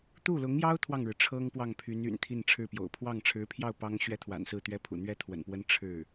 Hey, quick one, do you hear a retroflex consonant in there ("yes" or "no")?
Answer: yes